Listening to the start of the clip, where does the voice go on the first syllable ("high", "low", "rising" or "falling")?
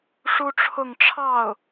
high